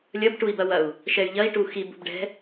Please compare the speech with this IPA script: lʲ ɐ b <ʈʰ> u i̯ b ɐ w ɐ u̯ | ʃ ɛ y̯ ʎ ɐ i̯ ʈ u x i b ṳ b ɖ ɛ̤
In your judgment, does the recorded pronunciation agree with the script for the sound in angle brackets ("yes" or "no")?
no